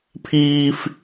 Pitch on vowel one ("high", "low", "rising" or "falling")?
high